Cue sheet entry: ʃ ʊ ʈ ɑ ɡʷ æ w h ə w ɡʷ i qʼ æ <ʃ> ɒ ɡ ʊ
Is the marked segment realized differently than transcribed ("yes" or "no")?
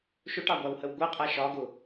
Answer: no